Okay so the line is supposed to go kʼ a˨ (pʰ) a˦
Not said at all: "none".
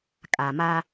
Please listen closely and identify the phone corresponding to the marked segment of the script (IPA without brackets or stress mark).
m